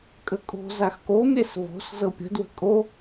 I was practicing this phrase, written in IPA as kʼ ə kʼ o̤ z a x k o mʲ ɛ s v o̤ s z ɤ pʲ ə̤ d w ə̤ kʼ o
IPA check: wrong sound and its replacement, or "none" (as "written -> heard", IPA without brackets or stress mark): none